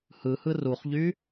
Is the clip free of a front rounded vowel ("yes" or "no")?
no